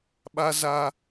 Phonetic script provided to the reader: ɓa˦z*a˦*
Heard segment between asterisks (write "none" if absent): a˦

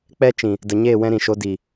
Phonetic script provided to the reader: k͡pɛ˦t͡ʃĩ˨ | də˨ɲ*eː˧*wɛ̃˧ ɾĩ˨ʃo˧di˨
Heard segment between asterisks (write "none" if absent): eː˦˨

